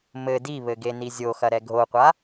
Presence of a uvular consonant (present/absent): present